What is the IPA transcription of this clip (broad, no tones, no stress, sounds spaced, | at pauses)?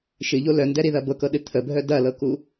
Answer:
ʃ ɨ ʎ o l œ n d ɛ ɾ i ð ɐ b ɤ k ɤ ɗ ɨ t̪ʰ ə bʱ œ d ɐ l ɤ k u